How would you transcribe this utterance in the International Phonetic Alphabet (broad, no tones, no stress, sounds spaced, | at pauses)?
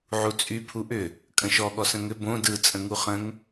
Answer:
ʕ u t͡sʼ y pʰ u ʔ ʏ | kʼ ə̃ ʃ ɔ ɠ ɔ s ə̃ ŋ ʏ b õ d ɯ t͡sʼ ə̃ ŋ u χ ə̃ ŋ